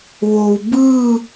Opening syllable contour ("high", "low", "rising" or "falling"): low